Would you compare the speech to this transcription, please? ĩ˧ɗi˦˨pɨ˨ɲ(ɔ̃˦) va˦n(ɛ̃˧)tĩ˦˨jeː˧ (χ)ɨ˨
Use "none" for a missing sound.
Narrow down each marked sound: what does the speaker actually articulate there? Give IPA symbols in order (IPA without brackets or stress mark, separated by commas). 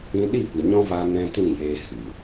ɔ̃˦, ɛ̃˦, h